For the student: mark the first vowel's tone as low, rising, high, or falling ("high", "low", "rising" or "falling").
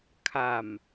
low